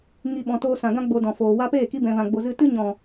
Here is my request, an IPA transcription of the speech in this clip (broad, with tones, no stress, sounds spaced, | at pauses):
ŋ i˨ ɓ ɔ̃˨ t oː˧ s ã˨ ɡ ã˦ ɡ͡b o˧ d ɔ̃˨ f oː˨ w a˧ p eː˦˨ k i˧ b ɛ̃˨ v ã˨ ɡ͡b o˨ z ɨ˧ t ɨ˦ ɲ ɔ̃˨